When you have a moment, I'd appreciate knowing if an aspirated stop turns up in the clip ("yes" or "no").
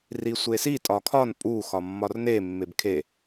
yes